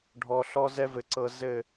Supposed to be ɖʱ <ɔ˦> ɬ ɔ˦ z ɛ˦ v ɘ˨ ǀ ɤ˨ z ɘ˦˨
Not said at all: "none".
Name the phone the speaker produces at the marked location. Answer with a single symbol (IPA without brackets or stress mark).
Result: ɔ˨